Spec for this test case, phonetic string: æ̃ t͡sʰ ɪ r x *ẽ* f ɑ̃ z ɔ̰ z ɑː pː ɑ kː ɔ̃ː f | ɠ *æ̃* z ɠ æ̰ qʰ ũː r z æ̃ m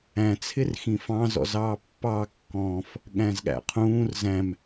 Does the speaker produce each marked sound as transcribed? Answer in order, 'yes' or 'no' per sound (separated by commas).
no, yes